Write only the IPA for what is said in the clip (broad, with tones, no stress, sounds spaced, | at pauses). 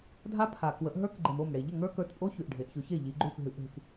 dʱ a˦˥ pʰ a˩ k w ə˩˧ ʔ ɦ ə˞˦˥ k ɡ͡ǃ e˩ m o˥˩ m ɽ e˩ ʎ ə˥˩ ŋ ə˞˦˥ k ə˞˩˧˩ t pʼ o˦˥ ç ʉ˩ ʔ ɖʱ e˩˧ ʔ ç ʉ˩˧ ç e˥˩ ʎ i˩˧ ɡ͡ǃ ʉ˥˩ p ɦ ɨ˩˧˩ ʔ ɦ ɨ˩ k